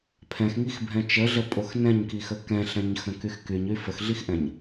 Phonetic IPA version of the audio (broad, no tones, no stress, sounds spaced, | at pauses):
pʰ ɛ̃ x ŋ i x bʱ ɛ̃ t͡ʃ ə ɮ ə pʼ o x n ɛ̃ ɲ k i x ə k ɛ̃ ɬ ɛ̃ ɲ x ə̃ k y x k y ɲ y f ə x ɮ i x ʔ ɛ̃ ɲ